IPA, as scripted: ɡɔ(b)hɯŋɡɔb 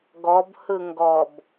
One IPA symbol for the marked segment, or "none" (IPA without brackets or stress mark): b